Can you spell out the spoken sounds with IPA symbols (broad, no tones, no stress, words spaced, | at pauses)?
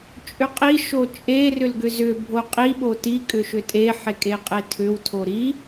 t͡ʃʼʏqʼi ʃot͡ʃʼe rʏlɡʏzʏ bʱoqʼi ɓoti kʼʏʃʏtʼe ħekʼeqʼetʰʏw tʰoɾi